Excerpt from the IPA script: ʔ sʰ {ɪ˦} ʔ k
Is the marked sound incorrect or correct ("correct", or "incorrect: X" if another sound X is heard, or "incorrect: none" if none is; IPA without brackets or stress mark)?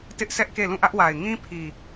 incorrect: ɛ˦